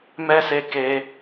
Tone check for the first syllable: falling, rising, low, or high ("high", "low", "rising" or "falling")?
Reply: high